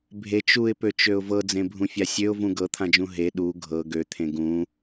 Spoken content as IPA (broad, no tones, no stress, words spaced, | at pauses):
bʱet͡ʃ uɪ̯pøt͡ʃøʊ̯ vɤd͡zẽbʱũfʲa sʲøʊ̯vũ ɡɤt̪ʰãd͡ʒũ ɦe ɗu ɡʱɤ ɡøt̪ʰẽ ɡũ